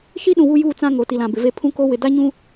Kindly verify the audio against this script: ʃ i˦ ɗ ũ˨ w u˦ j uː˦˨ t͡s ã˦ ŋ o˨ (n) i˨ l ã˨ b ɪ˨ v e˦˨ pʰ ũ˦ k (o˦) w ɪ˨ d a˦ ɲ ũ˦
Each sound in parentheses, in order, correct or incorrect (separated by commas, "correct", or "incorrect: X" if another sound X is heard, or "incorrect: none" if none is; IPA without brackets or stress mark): incorrect: t, correct